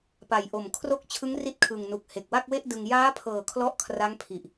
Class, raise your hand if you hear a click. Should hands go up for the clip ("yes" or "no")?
no